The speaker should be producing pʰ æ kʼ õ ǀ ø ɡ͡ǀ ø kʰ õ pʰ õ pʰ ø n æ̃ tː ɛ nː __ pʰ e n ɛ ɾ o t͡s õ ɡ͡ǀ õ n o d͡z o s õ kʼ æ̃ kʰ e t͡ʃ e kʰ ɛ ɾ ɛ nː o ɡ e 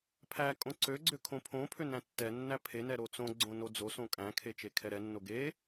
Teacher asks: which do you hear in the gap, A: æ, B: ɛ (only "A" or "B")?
A